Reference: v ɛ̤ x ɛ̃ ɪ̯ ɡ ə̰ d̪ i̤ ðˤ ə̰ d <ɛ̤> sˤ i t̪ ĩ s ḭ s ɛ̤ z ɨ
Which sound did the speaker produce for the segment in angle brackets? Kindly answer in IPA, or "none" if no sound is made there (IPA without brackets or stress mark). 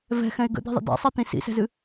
ɛ̰